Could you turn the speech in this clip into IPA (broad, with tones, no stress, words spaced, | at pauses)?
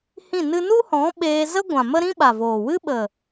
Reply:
hĩ˦˨nɨ˦ nu˦hɔ̃˨˦ ɓeː˧zə˦ ɡʷã˨mə˦ ɾĩ˦ɓa˨voː˨ wɨ˦ ɓə˨